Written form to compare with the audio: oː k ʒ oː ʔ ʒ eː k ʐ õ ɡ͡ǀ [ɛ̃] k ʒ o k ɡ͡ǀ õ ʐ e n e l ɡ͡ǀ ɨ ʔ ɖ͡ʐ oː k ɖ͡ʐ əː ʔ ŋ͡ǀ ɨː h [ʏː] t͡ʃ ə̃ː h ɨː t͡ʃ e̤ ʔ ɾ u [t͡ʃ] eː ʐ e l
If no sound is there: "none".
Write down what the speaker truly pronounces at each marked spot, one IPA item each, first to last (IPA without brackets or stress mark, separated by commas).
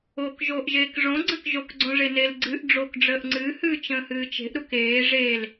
ə̃, ɨː, k